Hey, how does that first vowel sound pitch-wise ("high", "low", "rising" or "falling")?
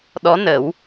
rising